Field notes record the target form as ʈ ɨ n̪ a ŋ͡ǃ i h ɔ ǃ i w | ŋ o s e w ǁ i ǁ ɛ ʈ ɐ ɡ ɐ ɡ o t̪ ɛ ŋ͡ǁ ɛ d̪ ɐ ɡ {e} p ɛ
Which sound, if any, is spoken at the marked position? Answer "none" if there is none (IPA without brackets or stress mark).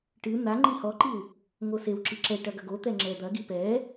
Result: i